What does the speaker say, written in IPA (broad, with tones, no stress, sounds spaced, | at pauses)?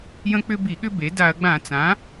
j ə̃˦ k͡p ʏ˦ b i˧˩˧ ɠ ʏ˦ b e˩˥ d a˧˩˧ ɐ̯ ɡ͡b ã˧˩˧ t͡s ã˩˥